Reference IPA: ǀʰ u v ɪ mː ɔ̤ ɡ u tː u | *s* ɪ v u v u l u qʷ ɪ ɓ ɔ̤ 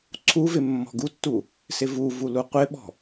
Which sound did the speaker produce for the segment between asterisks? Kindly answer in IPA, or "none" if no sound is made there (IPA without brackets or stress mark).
s